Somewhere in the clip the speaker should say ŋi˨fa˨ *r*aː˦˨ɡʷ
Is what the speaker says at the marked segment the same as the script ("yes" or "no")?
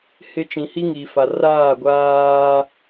yes